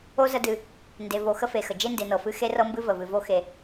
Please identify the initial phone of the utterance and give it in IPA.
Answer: o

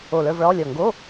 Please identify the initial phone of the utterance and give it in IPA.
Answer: o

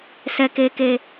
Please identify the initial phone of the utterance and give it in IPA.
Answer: s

